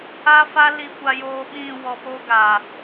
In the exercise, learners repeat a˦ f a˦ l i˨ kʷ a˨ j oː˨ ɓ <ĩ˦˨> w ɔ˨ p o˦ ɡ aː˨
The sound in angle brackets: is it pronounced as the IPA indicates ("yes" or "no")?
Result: yes